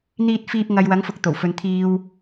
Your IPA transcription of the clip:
n̪ iː˨ t̚ f iː˨ p̚ ŋ ɐ˨ j w ɐ˨˥ ŋ f ʊ˨ k̚ t̪ o˨˩ w f ɵ˨˧ n t̪ʰ iː˨ w

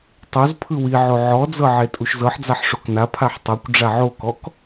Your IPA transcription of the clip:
tˤ o z pʰ ɯ w i ʕ o ʕ ɔ d͡z ɤ ʕ e tʼ u ʃ z ɤ ħ d͡z a ħ ʂ o k n a pʰ a ħ tˤ ɤ kʷ ɖ͡ʐ a ʕ o k ɔ k

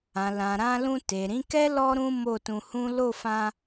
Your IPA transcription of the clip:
ã˨ l ã˨ ɾ ã˧ l ũ˧ t e˨ ɾ ĩ˨˦ k ɛ˦ l ɔ˦ ɾ ũ˦ m o˦˨ t ũ˧ h ũ˦ l o˦˨ f ã˧

